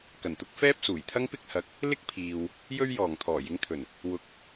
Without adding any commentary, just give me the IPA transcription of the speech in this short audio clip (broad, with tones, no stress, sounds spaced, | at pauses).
k ɐ˨˩ n t̪ ʊ˧ k̚ f ɛː˥ p̚ s uː˨˩ j t̪ʰ ɐ˥ ŋ p ɪ˥ k̚ h ɐ˨˥ k̚ | l ɪ˥ k̚ pʰ iː˨ w | j ɵ˥ ɥ j ɔː˨˩ ŋ t̪ʰ ɔː˨˩ j ɪ˨˧ ŋ t̪ʰ ɵ˨˩ n | w ʊ˨˥ k̚